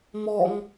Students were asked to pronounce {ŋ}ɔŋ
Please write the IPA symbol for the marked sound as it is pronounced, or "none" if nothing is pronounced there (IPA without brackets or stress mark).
m